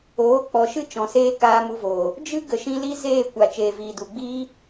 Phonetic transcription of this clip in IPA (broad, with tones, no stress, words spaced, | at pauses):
oː˨˦k͡pɔ˨ʃɨ˦ t͡ʃɔ̃˨seː˦ kaː˧mu˧voː˨ | d͡ʒɨ˦ ɡə˨ʃĩ˧li˦ zeː˦˨kʷa˨ t͡ʃeː˨viː˨du˨ɡ͡biː˦